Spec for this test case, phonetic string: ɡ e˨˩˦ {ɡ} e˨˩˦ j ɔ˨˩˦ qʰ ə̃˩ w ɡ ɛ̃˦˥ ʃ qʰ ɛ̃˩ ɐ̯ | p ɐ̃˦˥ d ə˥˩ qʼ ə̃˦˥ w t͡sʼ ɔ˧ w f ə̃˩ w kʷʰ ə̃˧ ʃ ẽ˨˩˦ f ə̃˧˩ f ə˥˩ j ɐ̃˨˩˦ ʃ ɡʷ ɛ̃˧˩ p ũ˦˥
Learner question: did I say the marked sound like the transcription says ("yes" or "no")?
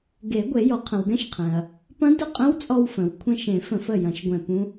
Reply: no